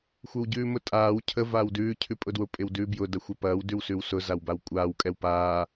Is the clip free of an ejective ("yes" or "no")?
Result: no